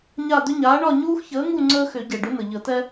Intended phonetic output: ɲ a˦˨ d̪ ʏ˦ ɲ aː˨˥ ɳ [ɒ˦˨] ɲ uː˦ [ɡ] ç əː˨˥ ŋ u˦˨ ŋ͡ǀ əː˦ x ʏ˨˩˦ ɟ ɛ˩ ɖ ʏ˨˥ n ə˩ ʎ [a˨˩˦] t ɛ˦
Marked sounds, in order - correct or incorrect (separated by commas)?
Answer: correct, incorrect, incorrect